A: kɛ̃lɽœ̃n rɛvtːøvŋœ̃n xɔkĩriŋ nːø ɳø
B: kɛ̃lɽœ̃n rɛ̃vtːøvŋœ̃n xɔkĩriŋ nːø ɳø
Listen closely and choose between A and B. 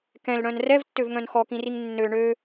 A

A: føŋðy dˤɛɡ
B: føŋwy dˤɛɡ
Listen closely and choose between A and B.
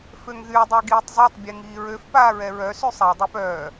A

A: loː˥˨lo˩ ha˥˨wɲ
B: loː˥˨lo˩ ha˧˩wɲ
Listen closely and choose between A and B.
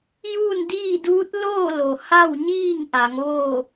A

